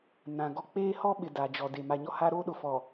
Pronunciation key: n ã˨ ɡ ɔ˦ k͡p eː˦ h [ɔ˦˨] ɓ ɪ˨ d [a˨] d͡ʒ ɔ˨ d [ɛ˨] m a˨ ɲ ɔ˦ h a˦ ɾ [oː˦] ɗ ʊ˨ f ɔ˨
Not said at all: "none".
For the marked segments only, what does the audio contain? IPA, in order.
ɔ˦, a˨, e˨, o˦

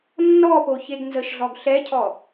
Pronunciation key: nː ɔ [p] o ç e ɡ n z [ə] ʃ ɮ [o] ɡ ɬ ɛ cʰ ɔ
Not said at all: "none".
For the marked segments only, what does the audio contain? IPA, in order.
p, ə, ɔ

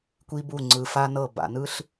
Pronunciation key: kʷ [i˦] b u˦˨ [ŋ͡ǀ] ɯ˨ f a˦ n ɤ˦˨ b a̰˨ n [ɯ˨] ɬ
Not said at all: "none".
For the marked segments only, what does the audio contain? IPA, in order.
i˦, ŋ͡ǀ, ɯ˦

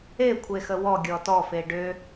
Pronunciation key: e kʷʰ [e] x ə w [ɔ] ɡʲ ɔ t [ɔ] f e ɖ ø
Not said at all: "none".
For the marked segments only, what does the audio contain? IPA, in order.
e, ɔ, ɔ

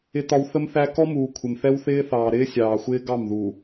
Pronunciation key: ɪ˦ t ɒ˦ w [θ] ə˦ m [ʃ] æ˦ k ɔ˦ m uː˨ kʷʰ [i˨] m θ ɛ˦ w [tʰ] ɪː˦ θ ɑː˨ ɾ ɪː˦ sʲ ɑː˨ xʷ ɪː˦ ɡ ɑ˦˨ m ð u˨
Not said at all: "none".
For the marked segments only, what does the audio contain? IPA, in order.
θ, θ, ɪ˨, θ

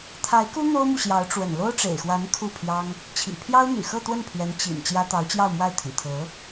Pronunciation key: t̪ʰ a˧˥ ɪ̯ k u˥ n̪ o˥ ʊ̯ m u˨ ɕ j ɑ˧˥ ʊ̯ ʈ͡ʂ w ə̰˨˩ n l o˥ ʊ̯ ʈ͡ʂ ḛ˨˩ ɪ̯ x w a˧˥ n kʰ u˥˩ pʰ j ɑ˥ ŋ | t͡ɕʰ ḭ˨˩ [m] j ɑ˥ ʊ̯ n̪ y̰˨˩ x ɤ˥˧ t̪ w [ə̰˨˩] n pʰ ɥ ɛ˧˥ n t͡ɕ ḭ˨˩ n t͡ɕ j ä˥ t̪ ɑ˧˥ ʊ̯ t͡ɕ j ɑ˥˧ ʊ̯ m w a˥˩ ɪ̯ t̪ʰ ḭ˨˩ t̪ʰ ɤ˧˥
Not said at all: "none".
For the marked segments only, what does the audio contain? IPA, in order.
pʰ, ə˥˩

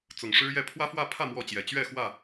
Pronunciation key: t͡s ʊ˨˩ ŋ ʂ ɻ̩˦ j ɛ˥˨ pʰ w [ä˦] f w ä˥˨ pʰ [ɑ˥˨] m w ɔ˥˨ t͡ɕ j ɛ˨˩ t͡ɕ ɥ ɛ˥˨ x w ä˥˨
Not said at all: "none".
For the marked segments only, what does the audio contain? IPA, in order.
ä˦, ä˥˨

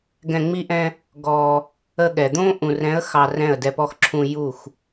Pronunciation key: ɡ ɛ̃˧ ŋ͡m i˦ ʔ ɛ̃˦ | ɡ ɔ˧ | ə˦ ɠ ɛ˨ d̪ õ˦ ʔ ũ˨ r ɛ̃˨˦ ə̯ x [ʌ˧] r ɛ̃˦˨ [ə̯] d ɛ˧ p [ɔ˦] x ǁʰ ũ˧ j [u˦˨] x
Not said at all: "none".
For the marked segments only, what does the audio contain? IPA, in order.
ɑ˧, ə̯, ɔ˦, u˦˨

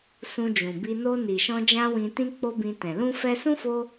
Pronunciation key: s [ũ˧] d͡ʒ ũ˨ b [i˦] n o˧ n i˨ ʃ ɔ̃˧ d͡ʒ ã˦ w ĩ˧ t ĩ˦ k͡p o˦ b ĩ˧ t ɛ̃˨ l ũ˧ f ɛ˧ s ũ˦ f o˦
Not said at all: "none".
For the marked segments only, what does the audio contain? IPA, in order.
ũ˧, i˧

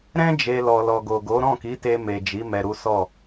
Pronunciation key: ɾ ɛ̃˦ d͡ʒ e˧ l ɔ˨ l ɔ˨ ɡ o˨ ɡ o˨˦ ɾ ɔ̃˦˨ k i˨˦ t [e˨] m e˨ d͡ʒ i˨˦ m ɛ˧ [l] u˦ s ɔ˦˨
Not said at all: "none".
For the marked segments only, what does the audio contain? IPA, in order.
e˧, ɾ

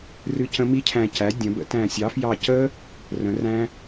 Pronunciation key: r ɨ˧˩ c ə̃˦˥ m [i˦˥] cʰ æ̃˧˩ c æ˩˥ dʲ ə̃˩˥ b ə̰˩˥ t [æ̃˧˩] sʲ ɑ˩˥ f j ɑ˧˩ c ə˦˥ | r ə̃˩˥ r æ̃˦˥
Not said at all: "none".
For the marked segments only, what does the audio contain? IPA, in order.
i˦˥, æ̃˧˩

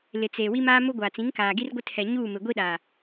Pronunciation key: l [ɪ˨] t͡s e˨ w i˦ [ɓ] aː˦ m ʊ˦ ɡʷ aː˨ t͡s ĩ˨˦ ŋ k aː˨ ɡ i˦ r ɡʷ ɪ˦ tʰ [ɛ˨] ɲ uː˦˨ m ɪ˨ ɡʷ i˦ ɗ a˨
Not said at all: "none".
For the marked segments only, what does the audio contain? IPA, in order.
ɪ˨, m, ɛ˨

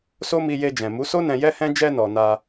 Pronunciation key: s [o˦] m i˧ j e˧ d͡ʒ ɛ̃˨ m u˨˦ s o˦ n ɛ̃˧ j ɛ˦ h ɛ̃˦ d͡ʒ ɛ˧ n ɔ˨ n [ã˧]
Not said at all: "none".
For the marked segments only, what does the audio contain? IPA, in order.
o˦, a˧

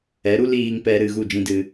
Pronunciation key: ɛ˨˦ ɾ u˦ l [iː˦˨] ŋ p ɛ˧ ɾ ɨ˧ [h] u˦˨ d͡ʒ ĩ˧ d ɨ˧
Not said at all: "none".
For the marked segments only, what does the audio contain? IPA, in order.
iː˧, ɣ

